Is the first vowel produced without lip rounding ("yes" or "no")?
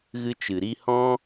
yes